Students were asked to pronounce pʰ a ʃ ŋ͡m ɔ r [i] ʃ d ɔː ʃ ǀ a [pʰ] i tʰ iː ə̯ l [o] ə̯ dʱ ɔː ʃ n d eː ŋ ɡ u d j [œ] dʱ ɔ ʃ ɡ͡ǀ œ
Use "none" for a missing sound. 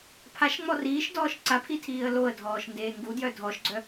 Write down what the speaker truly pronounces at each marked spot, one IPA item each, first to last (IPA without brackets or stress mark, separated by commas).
iː, pʰ, o, œ